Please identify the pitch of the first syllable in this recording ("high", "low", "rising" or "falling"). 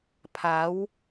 rising